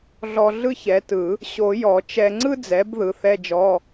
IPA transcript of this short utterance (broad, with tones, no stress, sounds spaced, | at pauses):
ɮ ɔ˧ ɮ ɯ˥ ç ɛ˩˥ t ɯ˨˩˦ | ɕ o˨˩˦ j ɔ˨˩˦ t͡ʃ ɛ˧ ŋ͡ǀ ɯ˥ d͡z ɛ˩˥ b ð ɯ˩˥ θ ɛ˧˥˧ d͡ʒ ɔ˧˥˧